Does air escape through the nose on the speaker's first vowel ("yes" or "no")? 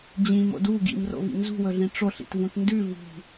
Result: yes